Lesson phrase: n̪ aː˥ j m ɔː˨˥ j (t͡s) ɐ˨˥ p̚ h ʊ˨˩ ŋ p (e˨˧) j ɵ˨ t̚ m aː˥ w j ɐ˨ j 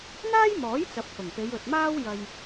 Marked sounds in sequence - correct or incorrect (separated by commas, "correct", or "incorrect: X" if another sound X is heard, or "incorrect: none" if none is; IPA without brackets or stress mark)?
correct, correct